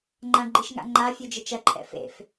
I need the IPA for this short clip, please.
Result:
ŋ͡ǃ ã ɡ͡ǃ i ʃ ŋ a̰ ŋ͡ǃ a fʲ u d͡ʒ ɘ t͡ʃ ɐ ǃʰ ɛ̰ f ḛ f

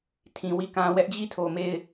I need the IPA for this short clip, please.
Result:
tʰ ĩ˨ w i˦˨ k ã˦ w ɛ˦ ʔ d͡ʑ i˦˨ tʰ o˨ m e˦˨ ɪ̯

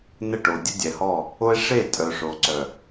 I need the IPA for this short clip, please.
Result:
n ə˦˨ ʈ o˨ dʲ ə˦ dʲ ɛ˨ h ɔ˦˨ | o˦ e̯ ʂ e˦˨ tʼ œ˨ ʂ o˨ ǀ œ˨

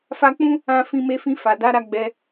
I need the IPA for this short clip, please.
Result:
f a˧ k͡p ũ˦ | ã˧ f ĩ˧ m e˧ f ĩ˧ f a˨ d a˨˦ ɾ a˧ ɡ͡b ɛ˧

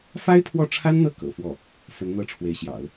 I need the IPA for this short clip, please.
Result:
f a˥ ɪ̯ pʰ w ɔ˥˩ ʈ͡ʂʰ a˥ n n̪ ɤ˥˩ k ɤ̰˨˩ f w ɔ˥˩ | f ə˧˥ n n̪ ɤ˥˩ ʈ͡ʂʰ w e˧˥ ɪ̯ ɕ j ɑ̰˨˩˦ ʊ̯

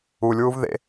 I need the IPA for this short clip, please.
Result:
u lʲ w u v ð ḛ

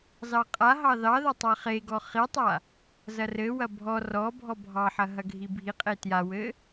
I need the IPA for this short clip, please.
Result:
z ɑ qʼ a ɦ ɑ ð ɑ ð ɐ tˤ a χ e ɡ ɔ χ i tˤ a | z ɐ r ɘ w ɐ bʱ ɔ r ɔ bʱ ɔ bʱ ɑ ħ ɐ ɦ ɐ ɡʱ i bʱ i qʼ e t j a w ɘ

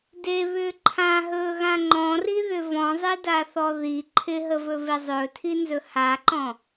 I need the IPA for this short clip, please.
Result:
d e β ʏː ǃʰ ã ɦ ɵː ɣ ã ŋ͡ǃ ɔ̃ r i ð ʏ v ɔ̃ zˤ ɪ d a θ ɔ ð i ǃʰ ɪ ɦ ə v ɵ v e zˤ ɵː tʰ i n z ɵ h a ǃ ɔ̃

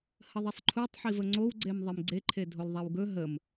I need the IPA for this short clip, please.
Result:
h ə ðˤ i sˤ ǃʰ u tˤ ħ i v ə ŋ͡ǀ o w ɡ͡ǀ e m ðˤ i m ɡ͡ǀ e ǃʰ e dʱ o l ðˤ ɛ w ɡ ɵ ɦ ə m

